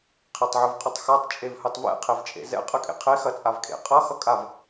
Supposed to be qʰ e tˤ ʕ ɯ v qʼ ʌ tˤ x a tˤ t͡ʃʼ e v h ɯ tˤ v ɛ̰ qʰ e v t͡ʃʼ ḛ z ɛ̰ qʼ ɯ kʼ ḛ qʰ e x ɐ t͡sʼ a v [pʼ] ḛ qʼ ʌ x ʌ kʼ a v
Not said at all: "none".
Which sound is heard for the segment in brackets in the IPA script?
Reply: kʼ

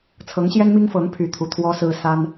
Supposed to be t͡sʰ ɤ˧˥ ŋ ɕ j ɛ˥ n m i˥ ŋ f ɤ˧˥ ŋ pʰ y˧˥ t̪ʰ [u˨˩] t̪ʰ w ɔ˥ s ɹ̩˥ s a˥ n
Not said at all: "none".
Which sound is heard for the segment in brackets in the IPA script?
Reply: u˨˩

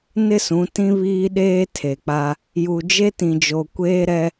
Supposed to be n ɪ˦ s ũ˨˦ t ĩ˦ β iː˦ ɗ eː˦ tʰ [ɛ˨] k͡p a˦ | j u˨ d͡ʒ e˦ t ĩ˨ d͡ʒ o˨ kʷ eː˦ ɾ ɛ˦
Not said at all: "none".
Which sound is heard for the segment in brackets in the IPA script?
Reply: e˨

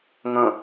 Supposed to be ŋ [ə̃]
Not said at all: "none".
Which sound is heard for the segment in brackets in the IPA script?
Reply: ə̃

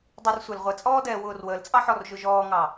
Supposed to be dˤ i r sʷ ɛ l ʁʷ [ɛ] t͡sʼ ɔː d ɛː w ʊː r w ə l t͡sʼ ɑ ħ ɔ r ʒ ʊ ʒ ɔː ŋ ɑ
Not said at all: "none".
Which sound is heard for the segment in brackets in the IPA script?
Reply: ɛ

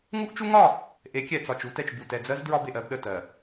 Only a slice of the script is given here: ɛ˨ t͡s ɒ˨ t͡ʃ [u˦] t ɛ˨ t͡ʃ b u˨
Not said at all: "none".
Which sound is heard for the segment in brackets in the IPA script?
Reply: u˦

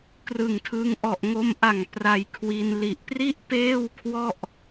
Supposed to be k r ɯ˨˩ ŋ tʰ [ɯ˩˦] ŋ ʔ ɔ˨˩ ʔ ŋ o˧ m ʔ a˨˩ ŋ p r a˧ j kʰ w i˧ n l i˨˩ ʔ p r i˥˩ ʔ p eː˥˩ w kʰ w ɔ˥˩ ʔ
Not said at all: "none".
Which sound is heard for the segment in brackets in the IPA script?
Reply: ɯ˧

